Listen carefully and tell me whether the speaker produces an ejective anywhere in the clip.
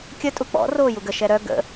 yes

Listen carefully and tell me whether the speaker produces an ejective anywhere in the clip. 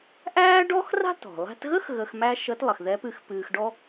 no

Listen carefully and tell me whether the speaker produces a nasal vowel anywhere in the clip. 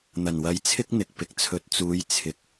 no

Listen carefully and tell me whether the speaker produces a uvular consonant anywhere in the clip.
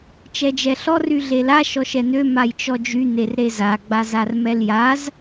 no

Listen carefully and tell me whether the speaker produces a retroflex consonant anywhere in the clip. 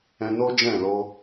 no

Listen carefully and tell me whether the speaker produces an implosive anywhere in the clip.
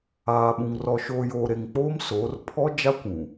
yes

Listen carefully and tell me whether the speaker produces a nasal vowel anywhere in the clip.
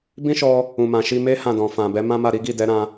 yes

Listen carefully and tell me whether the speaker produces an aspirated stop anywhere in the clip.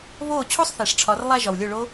yes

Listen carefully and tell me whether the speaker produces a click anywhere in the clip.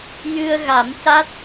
no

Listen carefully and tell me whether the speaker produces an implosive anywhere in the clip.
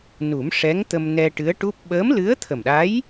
yes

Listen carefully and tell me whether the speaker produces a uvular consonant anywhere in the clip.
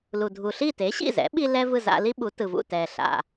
no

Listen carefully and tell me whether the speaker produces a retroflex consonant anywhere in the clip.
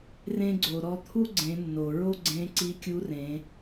no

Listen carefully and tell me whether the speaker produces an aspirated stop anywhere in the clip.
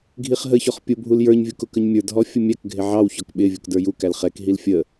no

